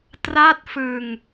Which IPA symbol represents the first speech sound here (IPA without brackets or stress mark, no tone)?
t